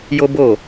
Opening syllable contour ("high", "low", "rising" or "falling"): high